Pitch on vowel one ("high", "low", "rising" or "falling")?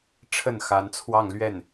falling